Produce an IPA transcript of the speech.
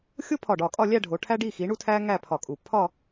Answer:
xʲ o˥ pʰ ɒ˧˩ ɖ ɒ˧˩ kʼ ɒ˥˧ lʲ æ˥˧ ɖʱ o˩˧ ʈʰ æ˥ ɖ i˥˧ x i˩˧ ɳ u˥˧ tʰ æ˥ ŋ æ˥˧ pʰ ɒ˧˩ kʼ u˧˩ pʰ ɒ˥˧

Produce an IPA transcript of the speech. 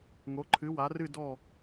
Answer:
ŋ o˨˦ ǃʰ ɨ˨˦ w a˨˦ r ɨ˦˨ d ɔ˦˨

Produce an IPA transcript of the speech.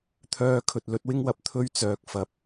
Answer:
t̪ʰ œː˥ kʰ ɵ˧ t̚ l ɵ˥ t̚ w ɪ˥ ŋ w ɐ˧ p̚ t̪ʰ ɵ˥ ɥ t͡s œː˨˥ k̚ f ɐ˨˥ p̚

